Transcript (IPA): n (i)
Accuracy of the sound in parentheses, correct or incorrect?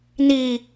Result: correct